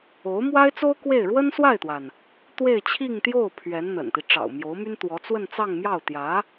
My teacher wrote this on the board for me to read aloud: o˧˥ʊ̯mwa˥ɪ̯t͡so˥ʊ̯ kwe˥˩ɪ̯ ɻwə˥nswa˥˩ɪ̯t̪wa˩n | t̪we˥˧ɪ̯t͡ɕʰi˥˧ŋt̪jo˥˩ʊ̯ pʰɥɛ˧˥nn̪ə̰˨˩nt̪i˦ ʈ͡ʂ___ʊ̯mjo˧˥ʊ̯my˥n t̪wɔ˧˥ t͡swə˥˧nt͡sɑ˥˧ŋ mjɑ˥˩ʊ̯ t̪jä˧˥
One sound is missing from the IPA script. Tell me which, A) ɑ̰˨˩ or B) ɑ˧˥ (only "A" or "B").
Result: A